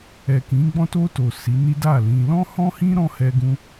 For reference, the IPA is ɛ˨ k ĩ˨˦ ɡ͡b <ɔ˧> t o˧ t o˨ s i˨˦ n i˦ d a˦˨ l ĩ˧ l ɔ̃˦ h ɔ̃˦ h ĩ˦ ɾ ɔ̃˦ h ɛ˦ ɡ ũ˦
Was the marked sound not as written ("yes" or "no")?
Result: yes